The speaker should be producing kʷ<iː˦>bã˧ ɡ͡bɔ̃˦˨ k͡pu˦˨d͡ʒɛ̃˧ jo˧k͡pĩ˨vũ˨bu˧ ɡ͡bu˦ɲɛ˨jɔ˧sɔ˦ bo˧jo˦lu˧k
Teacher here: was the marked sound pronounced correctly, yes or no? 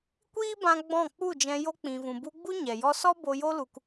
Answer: yes